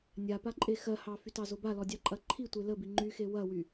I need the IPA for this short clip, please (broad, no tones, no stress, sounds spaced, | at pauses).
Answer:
nʲ a p a ǃʼ e x ɜ h ɑ f y t ɑ z o b a l ɔ dʲ ɑ ǃʼ ɐ ǃʰ i tʷ e l ə b i ŋ͡ǃ y x e w ɐ w y